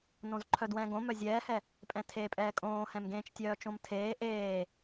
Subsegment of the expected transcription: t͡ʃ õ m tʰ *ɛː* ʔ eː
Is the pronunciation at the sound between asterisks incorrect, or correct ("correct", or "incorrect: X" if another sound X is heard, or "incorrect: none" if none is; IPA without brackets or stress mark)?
incorrect: eː